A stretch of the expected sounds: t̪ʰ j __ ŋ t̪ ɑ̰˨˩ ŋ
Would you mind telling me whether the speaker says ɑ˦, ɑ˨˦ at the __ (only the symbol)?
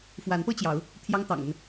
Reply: ɑ˦